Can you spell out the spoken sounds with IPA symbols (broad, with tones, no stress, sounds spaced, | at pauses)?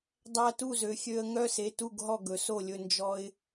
dˤ æ˦ t u˥˨ z ø˨˦ xʲ ø˦ ə̯ ŋ œ˦ s e˩˧˩ t u˥˨ ɡ ɦ ɔ˥˨ ɡ ɵ˨˦ s o˥˨ lʲ ɵ˦ n d͡ʒ ɔ˦ ɪ̯